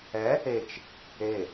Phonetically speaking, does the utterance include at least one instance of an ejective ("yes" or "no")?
no